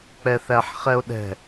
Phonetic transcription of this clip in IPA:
k͡p ɛ θ æ ħ χ ɛ o̯ ɗ ɛ̤

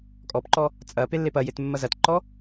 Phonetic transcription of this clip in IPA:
kʼ ɔ p ǃ ɔ | t͡sʼ ɐ p e lː e p ɐ j e t mː ɐ z ɐ t ǃ ɔ

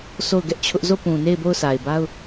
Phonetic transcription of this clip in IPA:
s o˦˨ ʊ̯ ɡ ɛ˦ ʔ t͡ɕʰ ʊ˦ ʔ z o˦˨ p ũ˨ n e˦˨ ɪ̯ b o˦˨ ʊ̯ s a˨ ɪ̯ b a˦ ʊ̯

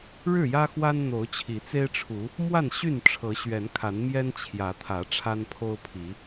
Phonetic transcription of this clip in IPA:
ɻ ɻ̩˥˨ j ä˦ x w a˦ n n̪ o˨˦ ʊ̯ t͡ɕʰ i˨˦ t͡s e˦ ɪ̯ ʈ͡ʂʰ u˨˦ | m w a˥˨ n ɕ y˥˨ n ʈ͡ʂʰ ɤ˨˦ ɕ ɥ ɛ˨˦ n kʰ a˨˦ n m j ɛ˦ n t͡ɕʰ j ä˨˦ t̪ʰ ä˨˦ ʈ͡ʂʰ a˦ n pʰ o˦ ʊ̯ pʰ i˨˦

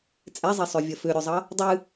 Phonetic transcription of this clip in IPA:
t͡sʼ ɛ zˤ e sˤ ø vʲ ɐ f ø ɾʲ u zˤ ʌ | dˤ ɨ

